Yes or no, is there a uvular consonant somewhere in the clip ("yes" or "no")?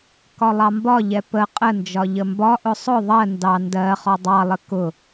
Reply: yes